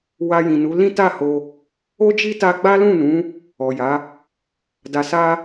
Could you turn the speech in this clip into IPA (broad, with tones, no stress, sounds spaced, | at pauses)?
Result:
w a˧ j ĩ˨ n u˨˦ l ĩ˦ t a˦˨ h o˧ | o˦ d͡ʒ i˦ t a˦ ɡ͡b a˦ l ũ˦˨ n ũ˨˦ | ɔ˨ j a˨˦ | d a˨ s a˧